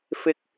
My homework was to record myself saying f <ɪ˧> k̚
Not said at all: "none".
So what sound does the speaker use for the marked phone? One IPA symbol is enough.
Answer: ɪ˧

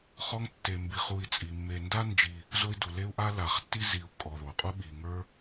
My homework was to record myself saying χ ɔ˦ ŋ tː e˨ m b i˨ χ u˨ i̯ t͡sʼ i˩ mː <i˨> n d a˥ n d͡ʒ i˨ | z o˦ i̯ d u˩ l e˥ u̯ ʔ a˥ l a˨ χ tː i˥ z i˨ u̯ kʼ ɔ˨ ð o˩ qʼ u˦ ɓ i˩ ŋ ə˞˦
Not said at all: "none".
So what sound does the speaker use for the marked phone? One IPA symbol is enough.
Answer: e˨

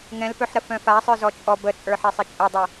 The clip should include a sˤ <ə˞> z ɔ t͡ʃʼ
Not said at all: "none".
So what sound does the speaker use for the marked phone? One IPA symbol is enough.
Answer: ə˞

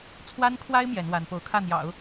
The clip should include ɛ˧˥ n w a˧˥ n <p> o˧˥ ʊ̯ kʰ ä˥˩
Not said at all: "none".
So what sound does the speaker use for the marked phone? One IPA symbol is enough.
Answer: p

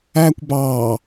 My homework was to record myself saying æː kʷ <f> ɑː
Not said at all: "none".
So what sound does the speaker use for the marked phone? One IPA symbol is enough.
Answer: b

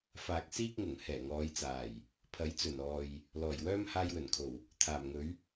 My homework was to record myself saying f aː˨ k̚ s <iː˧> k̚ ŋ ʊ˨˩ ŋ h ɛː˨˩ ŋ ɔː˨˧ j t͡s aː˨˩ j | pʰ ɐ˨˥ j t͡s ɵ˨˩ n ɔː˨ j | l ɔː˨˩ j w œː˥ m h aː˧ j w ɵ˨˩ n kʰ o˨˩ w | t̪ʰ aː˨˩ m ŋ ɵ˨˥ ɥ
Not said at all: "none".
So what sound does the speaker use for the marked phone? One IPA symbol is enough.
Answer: iː˥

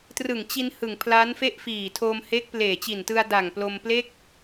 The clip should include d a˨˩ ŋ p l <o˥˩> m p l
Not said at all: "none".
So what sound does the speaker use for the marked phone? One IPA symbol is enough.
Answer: o˧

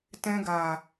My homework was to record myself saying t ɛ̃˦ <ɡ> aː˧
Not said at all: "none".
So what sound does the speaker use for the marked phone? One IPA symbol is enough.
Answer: ɡ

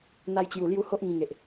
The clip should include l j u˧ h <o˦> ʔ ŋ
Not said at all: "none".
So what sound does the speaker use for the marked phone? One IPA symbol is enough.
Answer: o˦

